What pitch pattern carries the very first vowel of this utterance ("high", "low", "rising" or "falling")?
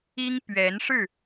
high